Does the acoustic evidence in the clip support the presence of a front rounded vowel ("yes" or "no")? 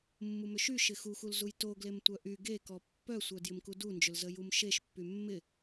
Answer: yes